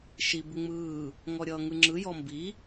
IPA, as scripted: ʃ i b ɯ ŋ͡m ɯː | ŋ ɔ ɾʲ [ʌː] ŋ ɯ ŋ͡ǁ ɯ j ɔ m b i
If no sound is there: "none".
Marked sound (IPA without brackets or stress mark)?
ʌː